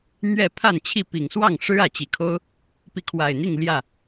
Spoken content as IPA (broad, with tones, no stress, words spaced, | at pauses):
n̪ɥɛ˥˨ pʰa˥˨nt͡ɕʰi˥˨ pi˨˩ŋswɑ˥˨ŋ ʂɻ̩˦ ä˨˩t͡ɕi˨˦kʰo˦ʊ̯ | pi˨˦kʰwa˨˩ɪ̯n̪i˥˨ŋ ljä˥˨